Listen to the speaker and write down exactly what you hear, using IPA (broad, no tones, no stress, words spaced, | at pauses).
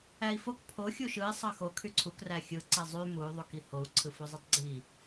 æi̯fok pʰo xʲuʃɯi̯ sˤɑxo kʰyǀʰuk ræxʲɯ ǀezˤy muy̯ ðˤukihou̯ ǀʰɯfuzˤetˤɡ͡ǀi